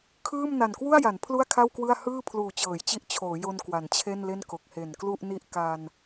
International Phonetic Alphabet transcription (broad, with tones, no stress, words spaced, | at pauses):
kʰɯː˥˩m na˨˩nkwu˥˩a̯ja˩˦n pʰlu˥˩a̯kʰa˥˩wkwɯ˥˩a̯ hɯː˥˩ pʰluː˨˩t͡ɕɤː˩˦jt͡ɕi˦˥ʔ t͡ɕʰoː˩˦jo˧n kwa˩˦nt͡ɕʰe˥˩nle˥˩n ko˨˩k̚he˨˩nklu˥˩ʔni˥˩ʔ ka˧n